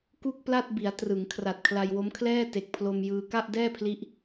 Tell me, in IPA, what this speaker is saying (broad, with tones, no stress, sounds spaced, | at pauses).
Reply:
k u˥˩ k̚ p l a˥˩ t̚ b i˩˦ a̯ t r ɯ˩˦ ŋ kʰ r a˨˩ t̚ kʰ l a˧ j w o˦˥ m kʰ l ɛː˥˩ t e˨˩ k̚ pʰ l o˧ m j ɯː˧ k a˥˩ ʔ d ɛː˥˩ pʰ l i˦˥ ʔ